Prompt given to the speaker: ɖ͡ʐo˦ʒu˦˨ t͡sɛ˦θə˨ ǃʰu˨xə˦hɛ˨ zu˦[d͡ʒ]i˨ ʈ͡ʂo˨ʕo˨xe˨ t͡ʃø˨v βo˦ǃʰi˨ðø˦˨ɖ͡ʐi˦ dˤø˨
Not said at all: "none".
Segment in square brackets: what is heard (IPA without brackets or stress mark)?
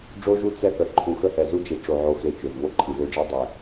d͡ʒ